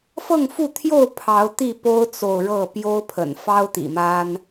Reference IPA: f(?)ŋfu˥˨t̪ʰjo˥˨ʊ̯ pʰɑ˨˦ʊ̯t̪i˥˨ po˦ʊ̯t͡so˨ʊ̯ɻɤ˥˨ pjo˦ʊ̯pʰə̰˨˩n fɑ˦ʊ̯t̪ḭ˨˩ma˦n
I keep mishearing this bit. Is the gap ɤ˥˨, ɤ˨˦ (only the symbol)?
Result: ɤ˥˨